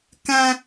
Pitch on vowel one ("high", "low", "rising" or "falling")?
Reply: high